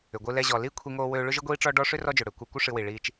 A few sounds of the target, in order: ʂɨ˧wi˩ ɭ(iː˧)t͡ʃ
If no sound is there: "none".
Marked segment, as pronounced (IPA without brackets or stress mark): iː˧